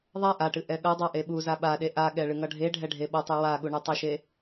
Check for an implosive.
present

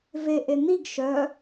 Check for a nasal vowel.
absent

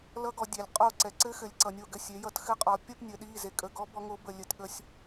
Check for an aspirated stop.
absent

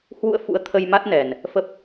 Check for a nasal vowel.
absent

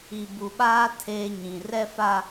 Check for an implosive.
present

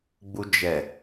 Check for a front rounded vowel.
absent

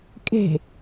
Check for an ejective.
present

